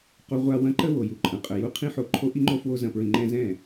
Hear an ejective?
yes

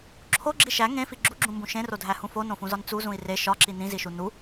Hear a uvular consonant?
no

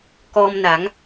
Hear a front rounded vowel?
no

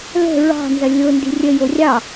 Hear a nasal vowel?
no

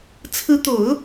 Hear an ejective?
no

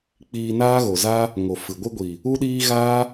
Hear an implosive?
yes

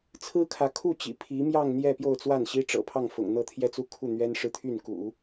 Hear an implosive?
no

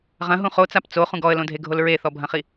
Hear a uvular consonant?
yes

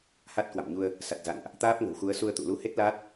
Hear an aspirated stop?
no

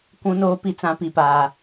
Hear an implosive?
no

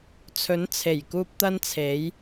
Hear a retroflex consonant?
no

